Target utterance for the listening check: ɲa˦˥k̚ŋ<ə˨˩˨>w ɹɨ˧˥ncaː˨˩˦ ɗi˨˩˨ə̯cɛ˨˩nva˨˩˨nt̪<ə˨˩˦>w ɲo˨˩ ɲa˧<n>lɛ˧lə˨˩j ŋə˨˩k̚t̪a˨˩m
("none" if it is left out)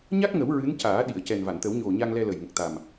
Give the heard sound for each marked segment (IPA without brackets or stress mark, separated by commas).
ə˨˩˦, ə˨˩˦, ŋ